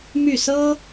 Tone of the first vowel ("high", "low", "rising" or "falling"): falling